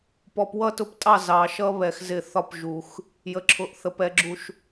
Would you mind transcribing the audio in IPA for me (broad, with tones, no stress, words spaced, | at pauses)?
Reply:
pɔ˨pwʌ˦˨tʊ˦ptʼɑ˦˨ zɑ˨ʃʌ˦ βɛ˨xzɪ˦˨θɒ˦p ʒu˨x | jə˨ǁʰʊ˨ʔθə˨p ɛ˨ɡ͡ǁu˨ʃ